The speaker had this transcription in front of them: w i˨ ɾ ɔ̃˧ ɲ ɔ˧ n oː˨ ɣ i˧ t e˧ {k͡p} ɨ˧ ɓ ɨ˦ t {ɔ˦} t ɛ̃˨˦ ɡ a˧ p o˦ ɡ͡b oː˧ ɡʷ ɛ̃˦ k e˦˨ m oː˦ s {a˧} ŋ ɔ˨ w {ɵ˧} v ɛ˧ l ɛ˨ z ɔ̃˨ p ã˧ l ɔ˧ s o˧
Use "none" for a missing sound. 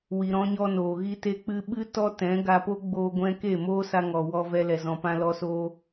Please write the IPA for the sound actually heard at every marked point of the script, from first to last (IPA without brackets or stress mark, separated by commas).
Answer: k͡p, ɔ˦, a˧, ɔ˧